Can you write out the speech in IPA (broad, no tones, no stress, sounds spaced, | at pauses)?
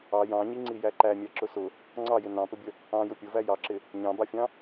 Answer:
ɑ j ɑ̃ ɲ i ŋ͡ǀ i j æ ǃ æ mʲ æ ǁ ʊ s ʊ | ŋ͡ǀ ɑ j ɪ n ɑ̃ p ə bʲ ə | ɑ̃ j ʊ pʲ ʊ v æ j ɑ ǁ ɪ | ɲ ɑ̃ b ɑ fʲ ɑ̃